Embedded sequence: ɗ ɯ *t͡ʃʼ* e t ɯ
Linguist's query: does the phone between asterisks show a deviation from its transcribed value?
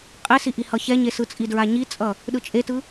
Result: no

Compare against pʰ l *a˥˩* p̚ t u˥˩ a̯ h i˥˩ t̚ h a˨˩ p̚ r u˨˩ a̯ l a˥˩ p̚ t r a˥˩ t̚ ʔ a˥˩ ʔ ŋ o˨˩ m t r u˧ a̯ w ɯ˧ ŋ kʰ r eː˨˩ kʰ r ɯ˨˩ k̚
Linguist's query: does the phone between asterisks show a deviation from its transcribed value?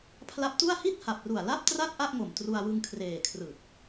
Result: yes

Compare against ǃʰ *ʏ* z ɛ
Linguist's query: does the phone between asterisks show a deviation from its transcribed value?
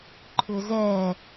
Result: no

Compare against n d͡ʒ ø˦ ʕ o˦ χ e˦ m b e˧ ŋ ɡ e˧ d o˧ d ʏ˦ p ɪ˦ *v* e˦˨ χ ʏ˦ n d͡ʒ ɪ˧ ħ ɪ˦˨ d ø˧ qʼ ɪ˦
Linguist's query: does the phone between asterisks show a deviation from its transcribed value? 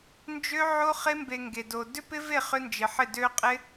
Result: no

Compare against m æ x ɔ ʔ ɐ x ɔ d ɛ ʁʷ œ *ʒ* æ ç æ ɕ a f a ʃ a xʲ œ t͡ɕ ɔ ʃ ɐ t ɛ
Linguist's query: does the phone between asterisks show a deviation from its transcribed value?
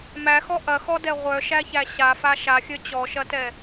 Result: yes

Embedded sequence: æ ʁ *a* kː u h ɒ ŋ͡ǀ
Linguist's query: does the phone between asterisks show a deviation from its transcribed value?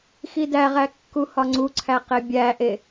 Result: yes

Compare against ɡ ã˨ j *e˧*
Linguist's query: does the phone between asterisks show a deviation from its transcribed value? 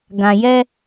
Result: yes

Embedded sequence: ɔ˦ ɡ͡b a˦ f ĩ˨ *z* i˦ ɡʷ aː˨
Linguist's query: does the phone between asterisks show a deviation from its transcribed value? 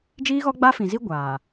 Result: no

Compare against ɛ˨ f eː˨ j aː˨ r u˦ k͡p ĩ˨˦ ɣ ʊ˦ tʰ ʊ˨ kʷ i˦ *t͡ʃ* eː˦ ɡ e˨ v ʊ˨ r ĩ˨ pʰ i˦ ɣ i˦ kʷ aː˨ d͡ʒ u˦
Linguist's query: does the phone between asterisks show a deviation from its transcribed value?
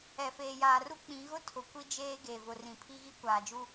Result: yes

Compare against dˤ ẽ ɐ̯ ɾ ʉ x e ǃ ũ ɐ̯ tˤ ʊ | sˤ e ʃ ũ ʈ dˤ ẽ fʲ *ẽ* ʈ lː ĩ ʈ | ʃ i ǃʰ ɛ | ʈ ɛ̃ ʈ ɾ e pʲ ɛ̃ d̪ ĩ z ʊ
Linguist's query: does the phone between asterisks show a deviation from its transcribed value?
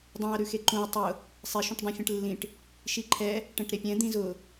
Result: no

